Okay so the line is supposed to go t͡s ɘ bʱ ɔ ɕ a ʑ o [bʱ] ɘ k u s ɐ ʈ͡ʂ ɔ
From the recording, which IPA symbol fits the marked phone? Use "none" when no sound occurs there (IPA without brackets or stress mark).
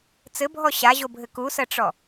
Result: bʱ